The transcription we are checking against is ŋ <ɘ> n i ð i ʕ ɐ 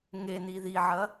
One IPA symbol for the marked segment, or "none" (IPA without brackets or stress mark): e